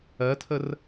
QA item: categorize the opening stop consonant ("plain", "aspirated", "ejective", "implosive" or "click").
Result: aspirated